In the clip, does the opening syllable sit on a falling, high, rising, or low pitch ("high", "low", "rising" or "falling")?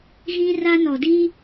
high